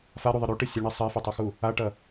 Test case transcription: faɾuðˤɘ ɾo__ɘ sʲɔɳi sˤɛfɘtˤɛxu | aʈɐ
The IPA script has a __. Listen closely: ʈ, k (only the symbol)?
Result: ʈ